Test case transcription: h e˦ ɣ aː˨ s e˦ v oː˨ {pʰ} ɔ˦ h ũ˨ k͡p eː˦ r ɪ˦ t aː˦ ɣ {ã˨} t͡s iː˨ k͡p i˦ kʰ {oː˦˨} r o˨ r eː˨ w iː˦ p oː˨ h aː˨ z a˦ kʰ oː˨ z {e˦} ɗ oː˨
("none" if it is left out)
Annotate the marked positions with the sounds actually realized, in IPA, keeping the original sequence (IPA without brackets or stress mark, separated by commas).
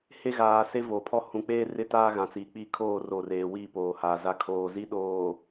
pʰ, ã˨, oː˦˨, i˦